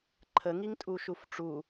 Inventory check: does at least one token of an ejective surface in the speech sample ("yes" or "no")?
yes